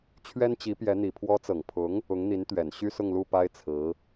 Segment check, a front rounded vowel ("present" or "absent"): present